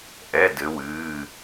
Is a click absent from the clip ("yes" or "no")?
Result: yes